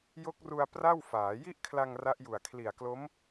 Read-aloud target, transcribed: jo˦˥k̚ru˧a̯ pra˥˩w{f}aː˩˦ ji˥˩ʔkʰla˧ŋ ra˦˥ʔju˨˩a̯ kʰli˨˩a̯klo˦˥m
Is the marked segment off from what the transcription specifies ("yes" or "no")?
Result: no